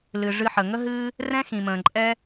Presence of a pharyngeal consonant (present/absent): present